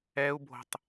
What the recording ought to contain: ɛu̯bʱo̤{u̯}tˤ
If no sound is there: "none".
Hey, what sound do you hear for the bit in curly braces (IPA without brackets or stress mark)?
none